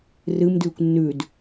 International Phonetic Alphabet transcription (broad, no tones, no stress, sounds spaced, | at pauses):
r ɨ m d ʉː kʷ nː ʉ d